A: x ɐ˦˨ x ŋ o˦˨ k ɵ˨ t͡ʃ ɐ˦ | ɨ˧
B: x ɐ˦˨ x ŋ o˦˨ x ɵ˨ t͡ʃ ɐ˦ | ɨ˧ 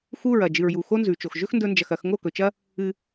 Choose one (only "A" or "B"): A